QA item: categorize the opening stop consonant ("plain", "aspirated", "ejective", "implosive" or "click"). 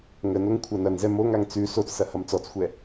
aspirated